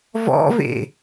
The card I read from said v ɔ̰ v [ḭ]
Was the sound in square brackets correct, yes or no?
no